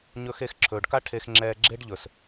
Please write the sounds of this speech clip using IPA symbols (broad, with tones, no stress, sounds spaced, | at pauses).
ɲ ɵ˧ x e˧ x ǁʰ ɵː˨ ɖ k a˦ ʈʰ e˧ x ŋ͡ǁ ɛː˧ ɡ͡ǁ e˦ ɖ ʎ ɵ˨ s